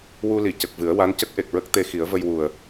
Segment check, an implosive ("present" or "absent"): absent